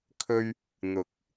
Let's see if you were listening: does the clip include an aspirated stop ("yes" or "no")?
yes